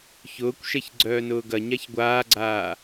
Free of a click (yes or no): no